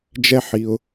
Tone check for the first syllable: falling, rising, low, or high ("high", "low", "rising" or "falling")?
high